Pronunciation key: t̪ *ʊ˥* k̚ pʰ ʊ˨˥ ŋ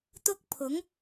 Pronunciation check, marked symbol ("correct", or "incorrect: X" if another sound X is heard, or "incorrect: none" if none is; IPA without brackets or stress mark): correct